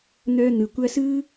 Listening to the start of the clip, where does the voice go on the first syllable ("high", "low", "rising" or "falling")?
high